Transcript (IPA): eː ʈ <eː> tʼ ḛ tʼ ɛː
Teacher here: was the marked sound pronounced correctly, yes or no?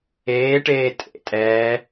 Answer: yes